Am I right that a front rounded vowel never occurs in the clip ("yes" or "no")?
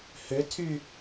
no